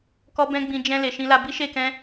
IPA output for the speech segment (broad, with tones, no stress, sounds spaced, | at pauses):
k ɔ˧ b ɛ̃˦ ɡ͡b ĩ˧ d͡ʒ ɛ̃˧ l e˨ ʃ ĩ˧ l a˧ b i˦ ʃ e˦˨ k ɛ̃˧